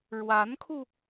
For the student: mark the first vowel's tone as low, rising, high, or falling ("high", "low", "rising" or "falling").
rising